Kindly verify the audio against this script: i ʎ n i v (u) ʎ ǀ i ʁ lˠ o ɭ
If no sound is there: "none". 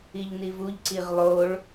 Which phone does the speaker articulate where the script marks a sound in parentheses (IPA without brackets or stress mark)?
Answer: u